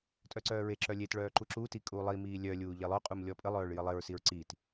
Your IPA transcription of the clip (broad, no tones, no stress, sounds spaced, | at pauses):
tʼ œ ǀ œː ɹ e ǁ œ lʲ e t ɭ œː ǃ u ǁ u t i kʼ uː lˠ i m iː lʲ œ lʲ uː ʎ e lˠ œ qʼ u m lʲ ɔ pʼ ə lˠ œː ɭ j ə lˠ e ɹ s i ɹ ǀ i t